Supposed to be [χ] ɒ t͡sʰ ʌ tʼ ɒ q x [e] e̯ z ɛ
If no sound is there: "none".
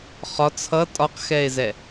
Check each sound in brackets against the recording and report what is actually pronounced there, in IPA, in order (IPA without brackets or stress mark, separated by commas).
χ, ɛ